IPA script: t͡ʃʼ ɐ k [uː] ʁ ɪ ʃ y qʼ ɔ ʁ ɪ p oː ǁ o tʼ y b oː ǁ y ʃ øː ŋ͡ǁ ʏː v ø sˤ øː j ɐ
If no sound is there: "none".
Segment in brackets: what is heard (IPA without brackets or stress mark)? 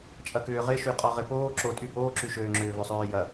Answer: ʏː